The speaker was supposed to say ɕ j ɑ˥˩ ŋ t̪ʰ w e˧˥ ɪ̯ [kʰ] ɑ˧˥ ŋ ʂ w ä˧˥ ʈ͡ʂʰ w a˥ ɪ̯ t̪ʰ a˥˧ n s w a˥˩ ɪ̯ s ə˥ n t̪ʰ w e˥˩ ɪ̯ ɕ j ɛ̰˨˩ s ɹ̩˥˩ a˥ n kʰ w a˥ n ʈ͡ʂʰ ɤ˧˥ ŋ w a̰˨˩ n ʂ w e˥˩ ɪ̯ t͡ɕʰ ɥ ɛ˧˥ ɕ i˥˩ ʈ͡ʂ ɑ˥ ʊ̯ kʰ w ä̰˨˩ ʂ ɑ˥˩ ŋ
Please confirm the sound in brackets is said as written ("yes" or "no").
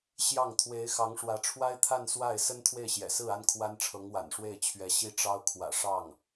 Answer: no